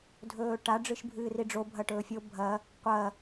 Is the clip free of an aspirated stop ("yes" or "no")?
yes